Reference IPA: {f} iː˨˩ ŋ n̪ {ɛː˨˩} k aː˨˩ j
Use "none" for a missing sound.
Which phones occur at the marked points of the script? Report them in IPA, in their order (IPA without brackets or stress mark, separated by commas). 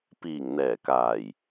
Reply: p, ɛː˨˩